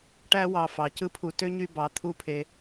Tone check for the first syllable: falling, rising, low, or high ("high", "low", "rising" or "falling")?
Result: high